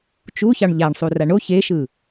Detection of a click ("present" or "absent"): absent